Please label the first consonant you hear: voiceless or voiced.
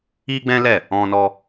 voiced